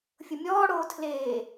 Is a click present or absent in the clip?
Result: absent